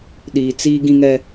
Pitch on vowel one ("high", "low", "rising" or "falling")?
low